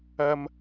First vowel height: low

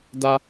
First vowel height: low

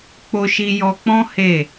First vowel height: mid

